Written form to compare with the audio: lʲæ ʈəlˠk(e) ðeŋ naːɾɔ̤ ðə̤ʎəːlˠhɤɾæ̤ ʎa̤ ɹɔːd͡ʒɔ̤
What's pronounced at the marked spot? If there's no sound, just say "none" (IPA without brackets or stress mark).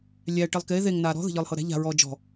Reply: e